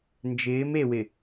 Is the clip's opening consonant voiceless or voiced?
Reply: voiced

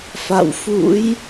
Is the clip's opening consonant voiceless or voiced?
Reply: voiceless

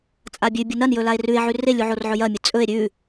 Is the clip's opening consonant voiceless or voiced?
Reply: voiceless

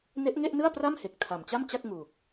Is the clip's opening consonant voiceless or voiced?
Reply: voiced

